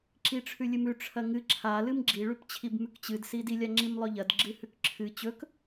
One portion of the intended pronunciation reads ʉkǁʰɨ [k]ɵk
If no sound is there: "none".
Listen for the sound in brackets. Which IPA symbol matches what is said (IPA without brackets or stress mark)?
t͡ɕ